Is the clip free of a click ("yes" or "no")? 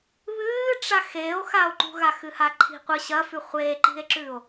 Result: no